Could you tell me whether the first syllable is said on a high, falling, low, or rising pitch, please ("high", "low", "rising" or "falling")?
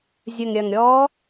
low